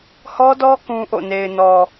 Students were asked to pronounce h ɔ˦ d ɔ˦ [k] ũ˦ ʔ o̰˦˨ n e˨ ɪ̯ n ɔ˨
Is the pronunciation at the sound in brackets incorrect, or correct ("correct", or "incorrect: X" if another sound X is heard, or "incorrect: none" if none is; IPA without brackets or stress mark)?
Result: correct